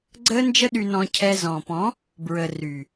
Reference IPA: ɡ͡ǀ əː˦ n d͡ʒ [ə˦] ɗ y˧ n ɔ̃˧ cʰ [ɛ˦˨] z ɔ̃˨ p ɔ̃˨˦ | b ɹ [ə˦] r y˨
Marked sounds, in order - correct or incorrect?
correct, incorrect: ɛ˧, incorrect: ə˨

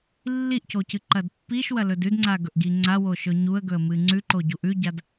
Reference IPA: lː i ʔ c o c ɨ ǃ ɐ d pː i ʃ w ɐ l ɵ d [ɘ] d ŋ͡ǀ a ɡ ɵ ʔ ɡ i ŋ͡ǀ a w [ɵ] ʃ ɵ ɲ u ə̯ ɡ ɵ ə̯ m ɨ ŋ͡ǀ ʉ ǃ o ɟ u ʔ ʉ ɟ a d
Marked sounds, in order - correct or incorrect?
incorrect: ʉ, incorrect: o

